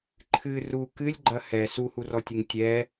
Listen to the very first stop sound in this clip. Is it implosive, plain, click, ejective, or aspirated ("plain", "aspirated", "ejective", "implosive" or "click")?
click